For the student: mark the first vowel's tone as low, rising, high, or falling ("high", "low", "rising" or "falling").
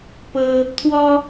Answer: high